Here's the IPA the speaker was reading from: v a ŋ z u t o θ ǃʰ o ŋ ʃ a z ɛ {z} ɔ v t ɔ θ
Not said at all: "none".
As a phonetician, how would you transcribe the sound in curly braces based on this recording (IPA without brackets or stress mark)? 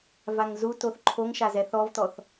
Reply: θ